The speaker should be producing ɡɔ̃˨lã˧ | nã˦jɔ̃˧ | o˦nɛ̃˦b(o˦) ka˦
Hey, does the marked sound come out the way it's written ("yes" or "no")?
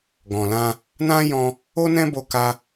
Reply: no